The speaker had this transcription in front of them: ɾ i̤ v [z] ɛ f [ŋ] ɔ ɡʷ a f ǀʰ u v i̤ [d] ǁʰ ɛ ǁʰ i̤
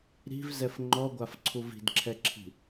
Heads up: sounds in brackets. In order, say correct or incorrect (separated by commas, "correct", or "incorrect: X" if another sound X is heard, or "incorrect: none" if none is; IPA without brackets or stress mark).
correct, incorrect: ŋ͡ǃ, correct